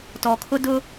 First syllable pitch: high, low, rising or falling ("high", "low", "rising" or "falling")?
low